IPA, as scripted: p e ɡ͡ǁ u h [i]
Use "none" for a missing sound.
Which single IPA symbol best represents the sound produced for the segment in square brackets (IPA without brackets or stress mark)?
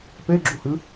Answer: ɨ